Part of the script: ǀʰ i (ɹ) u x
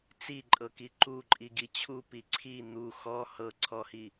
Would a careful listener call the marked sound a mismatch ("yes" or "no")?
yes